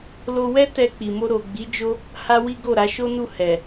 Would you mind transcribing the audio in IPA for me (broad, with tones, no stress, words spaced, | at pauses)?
lo˧wɛ˦ tɛ˧k͡pi˨mo˧ ɾo˨ɡ͡bi˨˦ d͡ʒo˦ | ha˦wi˦ɡo˦˨ɾa˨˦ ʃo˦nu˦˨ hɛ˨